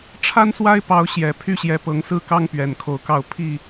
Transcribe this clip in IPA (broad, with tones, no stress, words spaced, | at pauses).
ʈ͡ʂʰa˦nswa˦ɪ̯pɑ˨˦ʊ̯ ɕjɛ˨˩ pʰy˥˨ɕjɛ˨˦ pɤ˨˦ŋsɹ̩˦kɑ˦ŋ pɥɛ˨˩nkʰo˨˦ʊ̯kɑ˥˨ʊ̯ pʰi˥˨